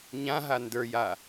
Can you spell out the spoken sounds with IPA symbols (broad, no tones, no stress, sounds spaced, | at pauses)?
ɲ ã ɦ a n d ə˞ j a